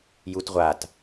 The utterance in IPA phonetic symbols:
j u t ʁʷ a t

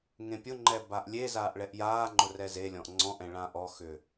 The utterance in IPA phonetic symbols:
ŋ ẽ pʲ ʊ ŋ͡ǃ ɛ b a ʔ lʲ e z aː ʔ ɭ ɛ ʔ j aː ŋ͡ǃ ʊ r ɛ z e lʲ ɔ̃ ʔ ŋ͡ǀ ɔ̃ ʔ ɛ̃ ɭ ã ʔ ɔ x ʏ

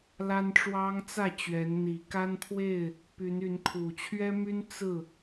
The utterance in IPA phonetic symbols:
l a˦ n ʈ͡ʂ w ɑ˦ ŋ t͡s ä˥˨ t͡ɕ ɥ ɛ˨˦ n n̪ i˨˦ k a˦ n pʰ w e˥˨ ɪ̯ | p y˨˦ n y˨˦ n kʰ u˨˩ t͡ɕʰ ɥ ɛ˦ m y˦ n t͡s ɹ̩˥˨

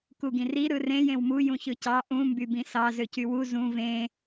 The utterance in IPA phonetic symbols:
k u ɡ ĩ r i ɾ ɯ r ẽ j ẽ w m u j ũ ç ɯ c ɑ ʔ ũ m b y b ĩ s ɑ z ø c y w u z ũ v ẽ

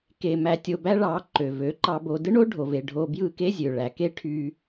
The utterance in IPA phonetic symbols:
k e˧ m æ˧ tʲ o˧ b æ˦ ɭ ɑ˨˦ ǃ ø˨ v ø˨˦ ǃ ɑ˧ b o˧ d ɯ˦ ɳ o˦ ɖʱ o˨ v e˨ ɖʱ o˧ b j ɯ˦˨ k e˦ zʲ ø˨ ɭ æ˨ k e˦ ʈʰ y˧

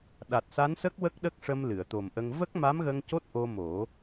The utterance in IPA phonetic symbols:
ɗ a˨˩ t̚ s a˧˥ n s ə˦˥ k̚ w ə˦˥ k̚ ɗ ə˦˥ k̚ ʂ ə˧ m l ɨ˨˩˨ ə̯ t̪ o˨˩ m ʔ ə˧ ŋ v ə˦˥ k̚ m a˧˥ m ɣ ə˧ ŋ c o˦˥ t̚ ʔ o˧ m o˨˩˦

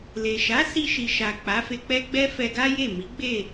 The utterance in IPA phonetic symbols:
l e˨ ʃ a˨˦ s i˧ ʃ i˨ ʃ a˨ k͡p a˨˦ f e˧ k͡p ɛ˦ ɡ͡b ɛ˦ f ɛ˧ ɡ a˦ j e˦˨ m i˨˦ ɡ͡b e˦˨

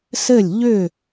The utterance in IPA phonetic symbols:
s ɘ˥˩ lʲ ʎ ʏ˥˩

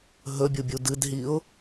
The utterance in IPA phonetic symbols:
ɦ ɵ bʲ u bʲ u d ɨ d ɦ i ʊ̯

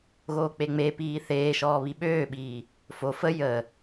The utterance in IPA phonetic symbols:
ɣ oː k͡p e ŋ͡m e p iː θ eː ʃ ɔː β i ɓ øː ɓ iː | f o f ə j ə

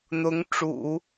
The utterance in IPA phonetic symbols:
n̪ ʊ˧˥ ŋ ʈ͡ʂ ṵ˨˩˦

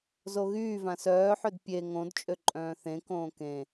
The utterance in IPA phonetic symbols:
z o ɣ yː v ã s œː ħ ø d pʲ e ŋ õ d t͡ʃʼ ø ǃʼ œ̃ː θ ẽ k õː k ẽ

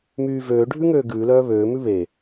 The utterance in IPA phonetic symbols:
m yː v øː ɖʱ ʉ ŋ øː ɡ ʉː l œː β øː m ʉ β e

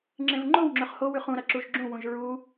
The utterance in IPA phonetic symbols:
ŋ͡ǁ ẽ v ŋ͡ǃ o w ŋ͡ǁ ɵ χ h o w ʉ χ ũ ɾ ɐ ǁ u ʒ ɡ͡ǁ ũ w ũ ʒ ɹ u

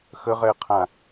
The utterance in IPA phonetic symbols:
x ə ʁ ɛ qʰ ã

